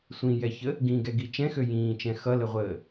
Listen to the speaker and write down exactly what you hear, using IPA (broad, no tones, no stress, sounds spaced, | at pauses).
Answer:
sʷ ĩ j ɛ ç ə | ɡ ĩ ɡ ɛ ɡ i t͡ʃ ɛ̃ x ø j ĩː t͡ʃ ɛ̃ x ʌ l ə ʁʷ əː